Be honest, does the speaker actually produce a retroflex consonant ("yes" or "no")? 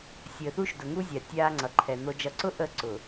no